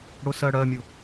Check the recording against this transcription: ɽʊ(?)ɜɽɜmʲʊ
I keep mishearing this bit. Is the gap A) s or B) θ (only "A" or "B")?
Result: A